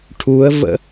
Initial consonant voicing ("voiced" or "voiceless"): voiceless